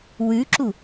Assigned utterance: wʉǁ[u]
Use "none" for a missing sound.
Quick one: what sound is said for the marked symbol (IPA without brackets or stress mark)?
u